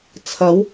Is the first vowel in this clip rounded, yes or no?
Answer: no